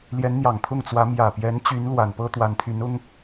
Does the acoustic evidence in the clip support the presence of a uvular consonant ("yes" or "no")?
no